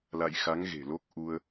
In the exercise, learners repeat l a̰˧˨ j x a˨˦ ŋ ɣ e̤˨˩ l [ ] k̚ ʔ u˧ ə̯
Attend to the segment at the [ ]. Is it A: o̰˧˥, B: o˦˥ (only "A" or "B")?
B